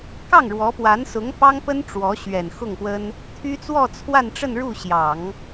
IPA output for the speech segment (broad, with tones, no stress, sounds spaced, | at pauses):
k ɑ˥˩ ŋ ɻ w ɔ˧˥ p w a˧˥ n s ʊ˧˥ ŋ p ɑ˥ ŋ p ə˥ n ʈ͡ʂ w ɔ˧˥ ɕ ɥ ɛ˨˩ n x ʊ˥˩ ŋ p w ə˥ n | t̪ʰ y˥ t͡s w ɔ˥˧ t͡sʰ w a˥˧ n ʈ͡ʂ ə˥˧ n ɻ u˥˩ ɕ j ɑ˨˩˦ ŋ